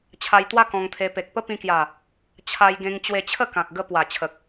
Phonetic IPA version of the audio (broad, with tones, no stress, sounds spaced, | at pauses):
t͡ɕʰ a˧ j t̪ w a˦ k ɔ̃˧ ŋ t̪ʰ e˧ p e˨ k̚ p ə˦ p ĩ˧ k j a˨˩ | t͡ɕʰ a˧ j ɡ ẽ˧ ŋ t͡ɕ w e˧ t͡ɕʰ ə˥˧ k ã˨ k̚ ɡ ə˧ p w a˨˩ t͡ɕʰ ə˨ k̚